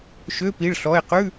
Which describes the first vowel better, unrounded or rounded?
rounded